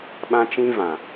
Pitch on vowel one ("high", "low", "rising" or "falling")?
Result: high